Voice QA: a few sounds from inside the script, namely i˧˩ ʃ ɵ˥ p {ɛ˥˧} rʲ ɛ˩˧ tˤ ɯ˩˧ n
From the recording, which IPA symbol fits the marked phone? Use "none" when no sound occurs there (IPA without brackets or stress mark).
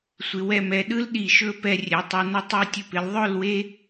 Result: ɛ˧